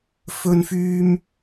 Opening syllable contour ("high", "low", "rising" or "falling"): high